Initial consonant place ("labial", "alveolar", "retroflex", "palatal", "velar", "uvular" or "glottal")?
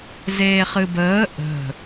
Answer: alveolar